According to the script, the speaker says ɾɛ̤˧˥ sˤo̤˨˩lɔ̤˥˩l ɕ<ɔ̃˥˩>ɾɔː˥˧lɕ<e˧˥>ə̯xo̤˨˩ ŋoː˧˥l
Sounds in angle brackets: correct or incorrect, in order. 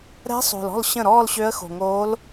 incorrect: ə̃˥˩, incorrect: ø˧˥

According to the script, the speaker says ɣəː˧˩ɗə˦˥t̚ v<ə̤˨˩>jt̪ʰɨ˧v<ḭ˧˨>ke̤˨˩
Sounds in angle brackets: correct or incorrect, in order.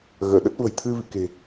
correct, correct

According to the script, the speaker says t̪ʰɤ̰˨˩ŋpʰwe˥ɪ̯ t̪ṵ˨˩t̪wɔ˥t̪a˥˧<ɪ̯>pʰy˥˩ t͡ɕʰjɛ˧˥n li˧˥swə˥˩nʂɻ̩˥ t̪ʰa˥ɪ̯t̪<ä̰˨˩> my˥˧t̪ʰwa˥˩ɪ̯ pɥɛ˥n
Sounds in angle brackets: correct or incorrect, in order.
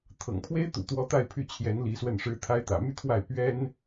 correct, correct

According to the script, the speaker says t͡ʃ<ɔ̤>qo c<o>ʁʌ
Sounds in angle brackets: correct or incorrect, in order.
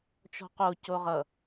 correct, correct

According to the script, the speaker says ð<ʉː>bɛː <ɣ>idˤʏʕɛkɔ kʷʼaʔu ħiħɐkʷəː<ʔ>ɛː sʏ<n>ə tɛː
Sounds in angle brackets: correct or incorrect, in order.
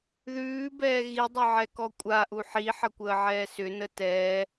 correct, correct, incorrect: ʕ, correct

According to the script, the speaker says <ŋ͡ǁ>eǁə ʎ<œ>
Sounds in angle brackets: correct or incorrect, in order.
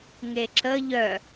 incorrect: ŋ, correct

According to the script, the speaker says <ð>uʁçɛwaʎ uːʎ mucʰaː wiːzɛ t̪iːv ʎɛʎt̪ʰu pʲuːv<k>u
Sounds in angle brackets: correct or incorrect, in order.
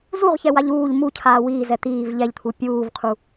incorrect: z, incorrect: qʰ

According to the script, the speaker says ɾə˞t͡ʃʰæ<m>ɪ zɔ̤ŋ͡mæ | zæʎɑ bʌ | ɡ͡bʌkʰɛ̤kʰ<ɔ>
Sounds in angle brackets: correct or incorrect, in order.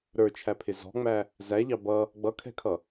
incorrect: pʰ, incorrect: ʌ

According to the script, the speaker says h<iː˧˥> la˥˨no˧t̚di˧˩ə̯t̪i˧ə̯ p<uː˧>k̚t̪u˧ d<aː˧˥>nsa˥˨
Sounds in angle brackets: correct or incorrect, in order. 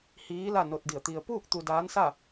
correct, incorrect: uː˥˨, correct

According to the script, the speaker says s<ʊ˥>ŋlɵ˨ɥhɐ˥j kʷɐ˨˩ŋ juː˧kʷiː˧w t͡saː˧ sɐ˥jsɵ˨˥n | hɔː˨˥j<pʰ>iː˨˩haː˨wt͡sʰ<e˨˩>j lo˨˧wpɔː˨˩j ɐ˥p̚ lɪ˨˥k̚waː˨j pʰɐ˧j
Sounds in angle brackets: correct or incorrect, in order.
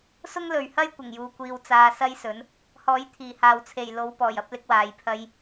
correct, incorrect: t̪ʰ, correct

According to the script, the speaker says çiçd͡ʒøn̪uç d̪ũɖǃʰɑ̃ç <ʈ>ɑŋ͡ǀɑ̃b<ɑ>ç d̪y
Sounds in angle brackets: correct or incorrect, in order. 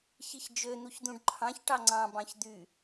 correct, incorrect: ɑ̃

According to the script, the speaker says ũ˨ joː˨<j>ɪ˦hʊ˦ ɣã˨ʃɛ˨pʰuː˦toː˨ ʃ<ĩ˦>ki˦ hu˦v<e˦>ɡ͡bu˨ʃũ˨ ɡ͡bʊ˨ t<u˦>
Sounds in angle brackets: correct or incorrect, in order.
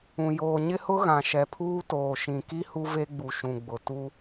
incorrect: ɲ, incorrect: ĩ˨, correct, correct

